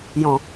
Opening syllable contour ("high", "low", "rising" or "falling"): low